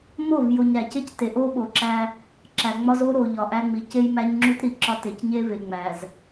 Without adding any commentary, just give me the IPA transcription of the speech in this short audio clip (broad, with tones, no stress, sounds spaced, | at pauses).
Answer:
m o˦˨ v j o˨ ɲ ɾ æ˨ c e˦ c t e˨ ʔ o˦ ɓ o˨ ǁ æ˦ | ǁ æ˨ ŋ͡m ɒ˦ z o˦ ɾ o˨ ʎ ɒ˨ ʔ æ˦ ŋ͡m i˨ c e˦ j m æ˦ ɲ ŋ͡ǁ u˦ t ɾ i˨ ǁ ɒ˦ t e˨ c ɲ e˦ v e˨ ŋ͡m æ˨ z